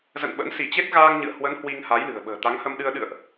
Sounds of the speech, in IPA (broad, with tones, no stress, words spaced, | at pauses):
zə̰˧˨nɓə̰˧˥n si˧˩t͡ɕe˦˥t̚ ɣaː˧ŋɲɨ̰˧˨ə̯hwə˨˦n hwi˧ŋha˨˦jlɨ̤˨˩ə̯ ɓə̤ː˨˩t̪a˨˦ŋhə˧mɗɨ˧ə̯ ɗɨ̰˧˨ə̯ʔ